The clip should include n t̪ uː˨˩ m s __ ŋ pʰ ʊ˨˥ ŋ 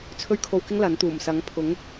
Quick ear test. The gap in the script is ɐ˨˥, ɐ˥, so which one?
ɐ˨˥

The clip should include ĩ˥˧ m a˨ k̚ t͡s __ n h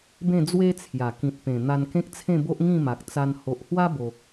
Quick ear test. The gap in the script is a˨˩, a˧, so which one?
a˧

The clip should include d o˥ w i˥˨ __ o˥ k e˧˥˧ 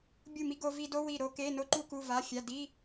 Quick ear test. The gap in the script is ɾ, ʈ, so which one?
ɾ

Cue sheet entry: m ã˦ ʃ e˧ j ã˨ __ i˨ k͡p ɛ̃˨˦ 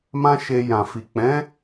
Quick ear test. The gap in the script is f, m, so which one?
f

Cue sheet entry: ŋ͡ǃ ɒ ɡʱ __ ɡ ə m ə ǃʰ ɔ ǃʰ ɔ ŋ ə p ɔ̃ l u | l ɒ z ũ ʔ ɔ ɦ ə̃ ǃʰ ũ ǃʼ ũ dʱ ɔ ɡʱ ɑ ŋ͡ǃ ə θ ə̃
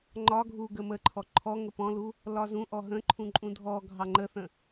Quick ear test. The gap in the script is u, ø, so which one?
u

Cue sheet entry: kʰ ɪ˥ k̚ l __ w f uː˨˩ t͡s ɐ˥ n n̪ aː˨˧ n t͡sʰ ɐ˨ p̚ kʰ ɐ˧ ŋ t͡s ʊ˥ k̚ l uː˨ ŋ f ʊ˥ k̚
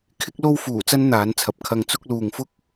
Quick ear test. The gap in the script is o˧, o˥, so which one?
o˥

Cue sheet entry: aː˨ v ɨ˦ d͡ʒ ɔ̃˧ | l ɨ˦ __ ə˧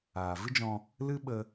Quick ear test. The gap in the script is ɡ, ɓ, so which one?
ɓ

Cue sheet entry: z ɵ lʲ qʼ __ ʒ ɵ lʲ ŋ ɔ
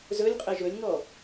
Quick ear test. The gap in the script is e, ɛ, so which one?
ɛ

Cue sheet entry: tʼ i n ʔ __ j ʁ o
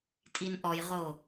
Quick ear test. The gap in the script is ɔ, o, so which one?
ɔ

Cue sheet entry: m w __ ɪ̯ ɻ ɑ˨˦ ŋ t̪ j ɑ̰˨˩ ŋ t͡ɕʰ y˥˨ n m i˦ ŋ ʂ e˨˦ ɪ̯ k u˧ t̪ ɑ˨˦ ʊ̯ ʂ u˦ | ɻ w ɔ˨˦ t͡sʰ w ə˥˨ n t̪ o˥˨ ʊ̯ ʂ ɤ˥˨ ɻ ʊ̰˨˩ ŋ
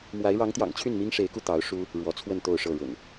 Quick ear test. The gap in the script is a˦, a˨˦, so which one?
a˨˦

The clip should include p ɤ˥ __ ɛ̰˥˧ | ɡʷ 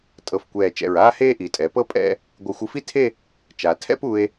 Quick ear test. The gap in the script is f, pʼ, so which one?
pʼ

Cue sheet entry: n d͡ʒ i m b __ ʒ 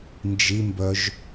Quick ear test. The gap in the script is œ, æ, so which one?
œ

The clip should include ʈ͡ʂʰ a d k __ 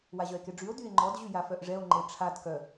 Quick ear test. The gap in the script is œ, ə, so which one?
œ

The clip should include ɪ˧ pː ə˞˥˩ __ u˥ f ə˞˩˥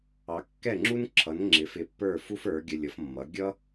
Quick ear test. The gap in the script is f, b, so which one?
f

